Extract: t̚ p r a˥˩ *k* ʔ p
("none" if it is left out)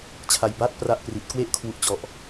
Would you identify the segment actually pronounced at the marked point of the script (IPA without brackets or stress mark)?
none